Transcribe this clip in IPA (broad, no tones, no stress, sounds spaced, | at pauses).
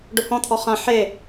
ɖ ʊ h ɔ̃ t̪ʰ ɔ χ ã ħ e